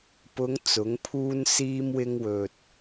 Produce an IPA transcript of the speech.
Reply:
pʊ˨˧ŋ t͡sʊ˨˥ŋpʰuː˥nsiː˥mwɪ˥ŋ wɵ˧t̚

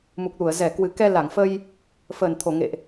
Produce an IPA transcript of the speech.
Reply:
mu˨˩k̚lu˧˩ə̯ zɛ˧˩kwɨ˨˩ kɛ˧la˧˩ŋfə˧j | fəː˨˩nt̪ʰo˧˩ ŋḛ˧˨ʔ

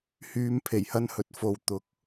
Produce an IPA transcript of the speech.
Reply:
hyː˧m pʰe˨˩jhɐ˥nhɵ˨˥t̚ fo˨w t̪ʊ˨k̚

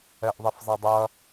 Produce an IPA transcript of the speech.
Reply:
ɛʔðˤefzˤɛdˤɐ

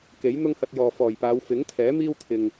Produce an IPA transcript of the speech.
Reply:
ke˨˥j n̪ʊ˥ŋhɐ˧t̚jɔː˨ fɔː˨˩jpaː˨˧w fɪ˨˥ŋt̪ʰɛː˨˥ miː˥wt̪ʰɪ˨ŋ

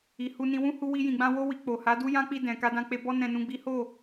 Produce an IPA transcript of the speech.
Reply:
i˨hu˧nĩ˧ wũ˦ hu˧wi˧jĩ˨ɡ͡bã˧ wo˧wi˨ k͡po˨ha˨˦du˦ jã˦k͡pi˧dɛ̃˨ ka˧dã˧k͡pe˧bɔ˦ nɛ̃˧nũ˧ɡ͡bi˦ ho˦˨

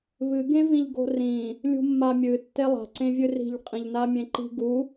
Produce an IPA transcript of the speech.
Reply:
βɨɡẽvĩʎɡo̤ rĩ | lʲṳmːamʲɨ tːelˠa̤ǀẽvʲɨ ri̤ʎqʼĩʎna mʲẽǃi̤ ɡu

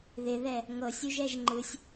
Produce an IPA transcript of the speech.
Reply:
ðɪðɛ | ŋɤsʲuʒɛʒ ŋ͡ǃɯsʲ

